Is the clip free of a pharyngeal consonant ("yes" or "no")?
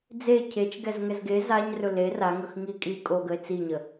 yes